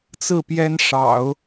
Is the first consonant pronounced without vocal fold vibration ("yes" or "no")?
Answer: yes